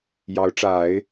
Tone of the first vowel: rising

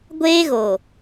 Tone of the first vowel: high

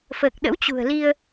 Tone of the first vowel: low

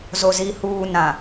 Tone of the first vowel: low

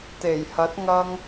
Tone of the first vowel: low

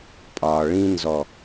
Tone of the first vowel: low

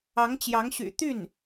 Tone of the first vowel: rising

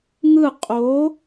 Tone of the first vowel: falling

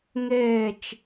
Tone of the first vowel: falling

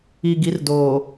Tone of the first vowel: low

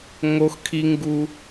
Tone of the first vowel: high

